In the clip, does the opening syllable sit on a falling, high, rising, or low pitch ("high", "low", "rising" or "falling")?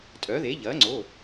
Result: rising